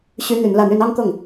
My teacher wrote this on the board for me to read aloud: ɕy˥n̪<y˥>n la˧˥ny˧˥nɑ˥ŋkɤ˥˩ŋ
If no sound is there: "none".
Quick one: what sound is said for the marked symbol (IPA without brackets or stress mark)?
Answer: y˧˥